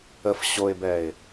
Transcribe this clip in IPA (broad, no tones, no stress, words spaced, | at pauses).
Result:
əf ɕoɪ̯bɛɪ̯